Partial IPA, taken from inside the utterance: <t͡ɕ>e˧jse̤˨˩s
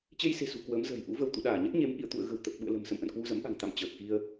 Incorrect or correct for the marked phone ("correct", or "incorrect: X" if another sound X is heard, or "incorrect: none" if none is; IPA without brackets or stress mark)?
correct